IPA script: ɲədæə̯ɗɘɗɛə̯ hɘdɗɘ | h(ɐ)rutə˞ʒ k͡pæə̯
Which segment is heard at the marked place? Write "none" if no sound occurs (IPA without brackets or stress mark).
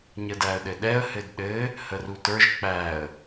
ə